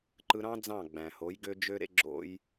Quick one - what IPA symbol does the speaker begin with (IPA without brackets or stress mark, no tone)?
ǃ